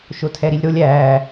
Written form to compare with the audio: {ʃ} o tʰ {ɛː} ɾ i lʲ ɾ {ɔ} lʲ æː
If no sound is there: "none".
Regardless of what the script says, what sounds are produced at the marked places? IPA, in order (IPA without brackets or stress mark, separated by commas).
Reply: ʃ, ɛ, o